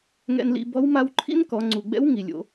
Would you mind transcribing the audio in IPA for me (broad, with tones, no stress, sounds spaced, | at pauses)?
ŋ ɛ̰˧ n l ḭ˧ b ɔ˧˥ w m a˧˥ w ǃʰ ḭ˥ n k ɔ˩˧ ŋ͡ǀ u˩ ɡ͡b ɛ̰˧˥ w ŋ i˩ lʲ o̰˧